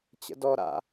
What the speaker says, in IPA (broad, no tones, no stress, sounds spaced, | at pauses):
t͡ɕ ə̰ d ɔ ɾ a̰